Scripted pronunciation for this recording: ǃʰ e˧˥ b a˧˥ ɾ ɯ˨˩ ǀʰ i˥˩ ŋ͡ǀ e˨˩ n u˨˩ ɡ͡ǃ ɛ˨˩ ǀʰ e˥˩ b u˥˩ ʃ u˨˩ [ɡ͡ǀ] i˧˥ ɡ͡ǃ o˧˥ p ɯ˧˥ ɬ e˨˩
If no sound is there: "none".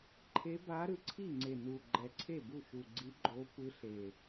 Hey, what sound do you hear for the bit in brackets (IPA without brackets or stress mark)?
ɡ͡ǀ